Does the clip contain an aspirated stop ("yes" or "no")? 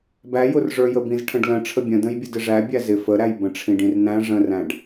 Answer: yes